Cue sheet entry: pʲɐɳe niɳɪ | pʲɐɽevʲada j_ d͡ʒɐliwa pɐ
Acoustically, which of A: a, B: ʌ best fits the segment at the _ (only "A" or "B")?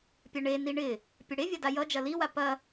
B